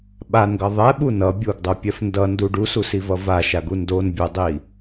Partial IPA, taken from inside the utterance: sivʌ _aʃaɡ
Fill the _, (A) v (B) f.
A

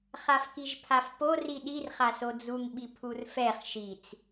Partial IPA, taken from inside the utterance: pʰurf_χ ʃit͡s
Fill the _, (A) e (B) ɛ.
B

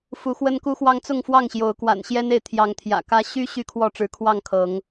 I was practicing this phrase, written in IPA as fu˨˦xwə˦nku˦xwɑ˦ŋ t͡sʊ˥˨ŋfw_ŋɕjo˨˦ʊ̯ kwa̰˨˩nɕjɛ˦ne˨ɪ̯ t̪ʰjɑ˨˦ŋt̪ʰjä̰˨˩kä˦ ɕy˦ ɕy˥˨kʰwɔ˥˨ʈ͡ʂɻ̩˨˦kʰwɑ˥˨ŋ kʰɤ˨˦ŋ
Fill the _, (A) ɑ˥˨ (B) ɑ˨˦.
A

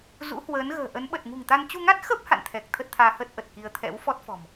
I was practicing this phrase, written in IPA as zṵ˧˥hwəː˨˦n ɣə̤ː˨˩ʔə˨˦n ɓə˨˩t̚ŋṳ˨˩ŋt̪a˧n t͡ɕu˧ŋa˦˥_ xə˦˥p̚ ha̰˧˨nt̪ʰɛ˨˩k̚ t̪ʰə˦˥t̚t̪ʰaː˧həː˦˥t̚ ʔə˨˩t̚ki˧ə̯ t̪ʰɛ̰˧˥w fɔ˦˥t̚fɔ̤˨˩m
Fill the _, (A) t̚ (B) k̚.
A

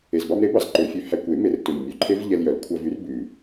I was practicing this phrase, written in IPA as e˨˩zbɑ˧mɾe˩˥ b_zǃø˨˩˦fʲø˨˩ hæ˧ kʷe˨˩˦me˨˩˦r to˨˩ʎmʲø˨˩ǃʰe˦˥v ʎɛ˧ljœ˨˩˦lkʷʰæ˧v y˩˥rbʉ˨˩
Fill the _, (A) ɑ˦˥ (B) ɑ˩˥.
B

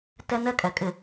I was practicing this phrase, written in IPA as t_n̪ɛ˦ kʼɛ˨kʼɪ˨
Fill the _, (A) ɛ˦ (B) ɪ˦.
A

